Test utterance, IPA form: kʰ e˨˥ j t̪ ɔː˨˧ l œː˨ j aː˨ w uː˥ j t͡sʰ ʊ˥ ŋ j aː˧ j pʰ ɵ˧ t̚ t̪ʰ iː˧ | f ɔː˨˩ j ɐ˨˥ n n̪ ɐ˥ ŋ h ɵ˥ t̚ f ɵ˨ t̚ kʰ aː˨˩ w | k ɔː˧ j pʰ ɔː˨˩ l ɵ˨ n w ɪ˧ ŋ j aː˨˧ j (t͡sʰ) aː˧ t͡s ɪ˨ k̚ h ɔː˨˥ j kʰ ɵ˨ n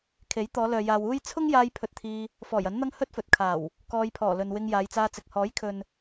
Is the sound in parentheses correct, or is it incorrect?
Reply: incorrect